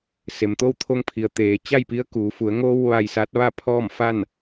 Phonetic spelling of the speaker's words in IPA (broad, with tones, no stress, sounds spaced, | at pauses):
s e˩ m t̪ o˥˨ w t̪ʰ o˧ ŋ pʰ i˩ ə̯ t̪ eː˩ t͡ɕ a˥˨ j p i˧˥ ə̯ k uː˩˧ f u˩˧ ə̯ ŋ o˧ w ʋ a˧ j s a˧˥ t̚ ʋ a˥˨ pʰ ɔː˥˨ m f a˥˨ n